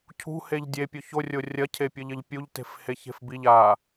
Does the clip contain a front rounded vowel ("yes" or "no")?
no